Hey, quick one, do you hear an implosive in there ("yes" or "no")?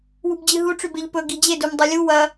no